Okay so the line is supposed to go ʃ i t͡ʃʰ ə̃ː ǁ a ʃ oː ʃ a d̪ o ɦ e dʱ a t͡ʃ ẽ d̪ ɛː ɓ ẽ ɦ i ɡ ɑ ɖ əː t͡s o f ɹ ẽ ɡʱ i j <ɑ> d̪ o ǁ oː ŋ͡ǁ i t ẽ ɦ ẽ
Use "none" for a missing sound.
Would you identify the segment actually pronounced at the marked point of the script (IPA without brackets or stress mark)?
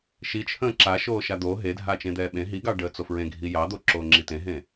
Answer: ɑ